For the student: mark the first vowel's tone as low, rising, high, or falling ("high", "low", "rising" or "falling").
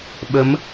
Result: rising